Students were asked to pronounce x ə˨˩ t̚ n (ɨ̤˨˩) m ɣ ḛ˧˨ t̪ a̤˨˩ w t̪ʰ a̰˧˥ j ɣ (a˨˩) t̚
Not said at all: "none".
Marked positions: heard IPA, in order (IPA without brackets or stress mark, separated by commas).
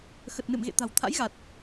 ɨ̰˧˨, a˨˩